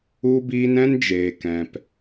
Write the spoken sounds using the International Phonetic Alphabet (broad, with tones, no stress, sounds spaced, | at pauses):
u˧ b iː˧ n ɛ̃˦ n d͡ʒ eː˨ k ɛ̃˨ p